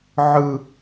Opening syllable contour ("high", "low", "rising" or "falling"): high